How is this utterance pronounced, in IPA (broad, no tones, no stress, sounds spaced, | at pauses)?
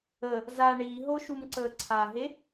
ə | z a ɳ iː ɦ o ʃ u m ǀ əː ǀʰ a ɦ e